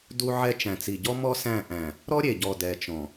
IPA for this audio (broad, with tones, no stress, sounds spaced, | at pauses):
d u˦ ʕ ɛ˦ t͡ʃ æ̃˨ t͡s i˨ ɟ ɔ˦ m ɔ˦ s æ̃˦˨ ʔ æ̃˨ | ɾ ɔ˦ ɾʲ e˨ ɟ ɔ˨ d ɛ˨ t͡ʃ ɔ̃˨